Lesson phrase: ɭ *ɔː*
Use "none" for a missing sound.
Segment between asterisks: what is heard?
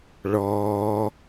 ɔː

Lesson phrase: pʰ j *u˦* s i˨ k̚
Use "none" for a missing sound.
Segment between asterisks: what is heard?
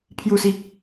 u˨˩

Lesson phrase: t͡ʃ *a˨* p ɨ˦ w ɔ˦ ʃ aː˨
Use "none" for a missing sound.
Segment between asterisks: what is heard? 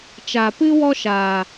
a˨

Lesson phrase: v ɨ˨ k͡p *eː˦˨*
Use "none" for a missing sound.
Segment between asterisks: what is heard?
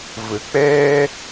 eː˦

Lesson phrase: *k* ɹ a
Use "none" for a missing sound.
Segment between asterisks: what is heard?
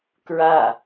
k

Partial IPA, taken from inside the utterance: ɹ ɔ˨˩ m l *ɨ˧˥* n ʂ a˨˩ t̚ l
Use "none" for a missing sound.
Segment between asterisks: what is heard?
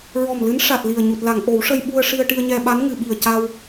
ɨ˧˥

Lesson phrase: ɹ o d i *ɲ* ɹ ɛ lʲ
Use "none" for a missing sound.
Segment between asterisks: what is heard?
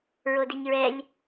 ɲ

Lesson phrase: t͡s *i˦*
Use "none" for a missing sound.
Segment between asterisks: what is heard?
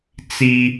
i˦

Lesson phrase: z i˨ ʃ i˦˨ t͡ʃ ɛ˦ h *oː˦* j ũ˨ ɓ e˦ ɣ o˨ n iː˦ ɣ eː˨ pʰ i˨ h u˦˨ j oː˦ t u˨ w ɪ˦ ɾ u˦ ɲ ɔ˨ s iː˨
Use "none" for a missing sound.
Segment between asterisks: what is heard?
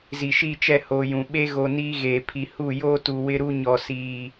oː˨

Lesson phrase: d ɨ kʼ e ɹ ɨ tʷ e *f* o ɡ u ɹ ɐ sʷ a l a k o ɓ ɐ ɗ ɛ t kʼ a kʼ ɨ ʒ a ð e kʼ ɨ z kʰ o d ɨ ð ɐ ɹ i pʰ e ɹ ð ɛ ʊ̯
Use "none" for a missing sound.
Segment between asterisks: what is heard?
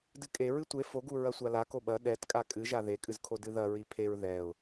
f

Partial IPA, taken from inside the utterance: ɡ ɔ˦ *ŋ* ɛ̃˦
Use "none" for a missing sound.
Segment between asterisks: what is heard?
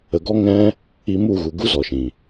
ŋ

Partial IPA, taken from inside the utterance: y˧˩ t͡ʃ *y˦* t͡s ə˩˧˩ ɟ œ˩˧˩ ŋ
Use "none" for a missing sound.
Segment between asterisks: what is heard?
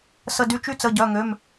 y˦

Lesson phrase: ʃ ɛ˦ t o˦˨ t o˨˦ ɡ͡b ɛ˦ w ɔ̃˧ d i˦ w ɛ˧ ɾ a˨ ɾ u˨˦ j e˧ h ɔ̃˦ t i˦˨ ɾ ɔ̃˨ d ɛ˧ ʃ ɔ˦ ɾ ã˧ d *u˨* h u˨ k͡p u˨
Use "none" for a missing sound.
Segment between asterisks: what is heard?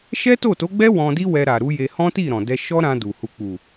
u˨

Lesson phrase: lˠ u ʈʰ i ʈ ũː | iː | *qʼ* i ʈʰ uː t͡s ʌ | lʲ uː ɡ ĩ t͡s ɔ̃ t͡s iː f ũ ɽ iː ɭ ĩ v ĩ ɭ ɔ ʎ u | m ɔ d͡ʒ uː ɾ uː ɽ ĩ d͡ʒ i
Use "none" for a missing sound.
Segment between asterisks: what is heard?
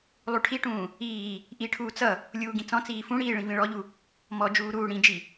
ʔ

